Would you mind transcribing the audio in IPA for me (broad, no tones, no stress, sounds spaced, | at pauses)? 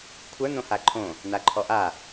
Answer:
kʷʰ ə˞ n̪ õ h a ǃʰ õ | n̪ a ǃʰ ɔ ʔ a